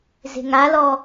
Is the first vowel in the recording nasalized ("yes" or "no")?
no